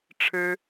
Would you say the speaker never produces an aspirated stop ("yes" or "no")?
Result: no